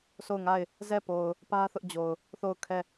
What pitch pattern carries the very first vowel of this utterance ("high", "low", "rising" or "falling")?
falling